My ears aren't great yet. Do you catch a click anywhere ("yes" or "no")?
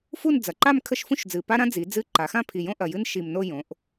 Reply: yes